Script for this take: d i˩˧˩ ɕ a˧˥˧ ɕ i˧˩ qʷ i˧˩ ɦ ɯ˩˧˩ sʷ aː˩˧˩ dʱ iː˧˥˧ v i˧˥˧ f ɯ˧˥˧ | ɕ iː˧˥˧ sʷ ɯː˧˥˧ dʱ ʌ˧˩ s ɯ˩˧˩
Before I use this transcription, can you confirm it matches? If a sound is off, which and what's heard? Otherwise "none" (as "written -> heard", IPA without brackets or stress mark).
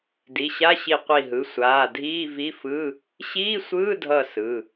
none